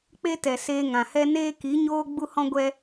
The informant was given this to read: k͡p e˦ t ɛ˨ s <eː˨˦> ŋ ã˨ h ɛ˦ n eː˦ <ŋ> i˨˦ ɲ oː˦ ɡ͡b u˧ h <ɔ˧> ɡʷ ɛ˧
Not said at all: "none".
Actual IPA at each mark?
eː˧, k, ɔ̃˧

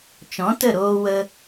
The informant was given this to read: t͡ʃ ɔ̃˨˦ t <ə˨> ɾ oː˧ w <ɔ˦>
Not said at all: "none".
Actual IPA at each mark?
ə˦˨, ə˦

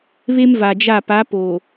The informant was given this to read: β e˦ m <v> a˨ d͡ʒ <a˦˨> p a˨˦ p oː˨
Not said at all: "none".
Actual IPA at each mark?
v, a˦˨

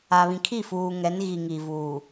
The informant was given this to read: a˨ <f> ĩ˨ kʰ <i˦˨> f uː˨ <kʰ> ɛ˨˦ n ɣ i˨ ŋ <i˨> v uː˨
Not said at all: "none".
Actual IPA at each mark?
β, i˦˨, ŋ, i˨

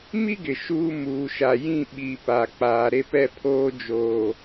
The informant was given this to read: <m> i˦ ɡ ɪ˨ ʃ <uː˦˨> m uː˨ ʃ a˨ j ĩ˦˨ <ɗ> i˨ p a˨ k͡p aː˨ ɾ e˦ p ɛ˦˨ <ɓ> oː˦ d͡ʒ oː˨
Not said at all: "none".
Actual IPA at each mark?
m, uː˦, ɓ, pʰ

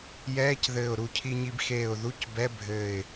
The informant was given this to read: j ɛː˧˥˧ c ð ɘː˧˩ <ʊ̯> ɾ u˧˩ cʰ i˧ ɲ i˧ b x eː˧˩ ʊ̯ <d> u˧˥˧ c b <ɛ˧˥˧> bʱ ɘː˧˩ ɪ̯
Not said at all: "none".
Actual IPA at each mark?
ʊ̯, ð, ɛ˧˥˧

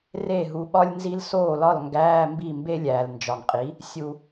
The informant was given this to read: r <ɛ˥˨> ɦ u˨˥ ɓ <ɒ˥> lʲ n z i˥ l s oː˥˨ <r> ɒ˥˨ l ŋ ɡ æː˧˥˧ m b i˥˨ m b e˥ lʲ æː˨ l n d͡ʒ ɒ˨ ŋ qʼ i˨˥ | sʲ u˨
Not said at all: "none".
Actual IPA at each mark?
e˥˨, ɒ˥, l

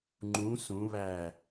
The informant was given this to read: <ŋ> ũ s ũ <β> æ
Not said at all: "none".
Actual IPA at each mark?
ŋ͡ǃ, β

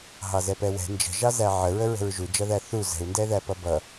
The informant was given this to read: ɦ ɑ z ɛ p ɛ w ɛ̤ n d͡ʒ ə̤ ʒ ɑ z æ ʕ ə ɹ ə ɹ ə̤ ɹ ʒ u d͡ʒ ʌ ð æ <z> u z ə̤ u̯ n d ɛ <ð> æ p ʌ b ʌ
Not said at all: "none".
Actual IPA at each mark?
θ, ð

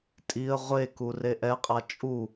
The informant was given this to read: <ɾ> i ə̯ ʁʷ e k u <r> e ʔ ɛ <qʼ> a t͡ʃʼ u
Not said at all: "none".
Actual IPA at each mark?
tʼ, r, qʼ

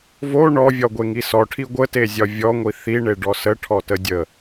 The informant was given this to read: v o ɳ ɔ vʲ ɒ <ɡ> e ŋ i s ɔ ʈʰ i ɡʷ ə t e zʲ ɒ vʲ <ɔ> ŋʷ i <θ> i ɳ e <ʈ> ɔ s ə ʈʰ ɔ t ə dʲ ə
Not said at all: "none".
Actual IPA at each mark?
ɡʷ, ɔ, θ, ɖ

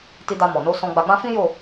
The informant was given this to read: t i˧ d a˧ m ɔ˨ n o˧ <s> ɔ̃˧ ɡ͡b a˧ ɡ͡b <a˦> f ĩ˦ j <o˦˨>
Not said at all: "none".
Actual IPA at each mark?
s, ã˦, o˦˨

